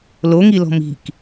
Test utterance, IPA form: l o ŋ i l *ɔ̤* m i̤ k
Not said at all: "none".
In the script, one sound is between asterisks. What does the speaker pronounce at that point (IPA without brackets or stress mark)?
ɔ̤